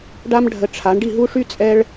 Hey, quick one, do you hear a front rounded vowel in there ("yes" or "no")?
yes